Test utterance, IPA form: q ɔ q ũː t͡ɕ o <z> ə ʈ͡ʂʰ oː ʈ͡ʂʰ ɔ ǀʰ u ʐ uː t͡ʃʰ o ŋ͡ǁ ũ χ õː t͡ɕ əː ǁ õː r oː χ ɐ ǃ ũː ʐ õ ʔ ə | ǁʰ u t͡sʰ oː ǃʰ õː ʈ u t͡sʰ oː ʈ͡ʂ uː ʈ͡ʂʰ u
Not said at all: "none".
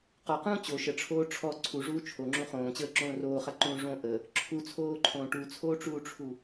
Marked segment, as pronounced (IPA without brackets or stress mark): ʃ